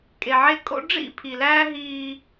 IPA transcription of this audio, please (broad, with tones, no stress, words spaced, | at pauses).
kʼe˨ʕe˦ kʼo̰˦ ɖ͡ʐḭ˦˨pʰi˨læː˦ ɦiː˦